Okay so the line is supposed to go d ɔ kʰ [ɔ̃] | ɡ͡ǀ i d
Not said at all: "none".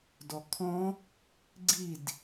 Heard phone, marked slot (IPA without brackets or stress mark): ɔ̃